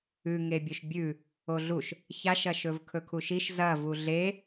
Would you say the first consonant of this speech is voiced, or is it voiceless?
voiced